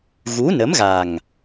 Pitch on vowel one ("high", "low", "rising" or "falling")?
rising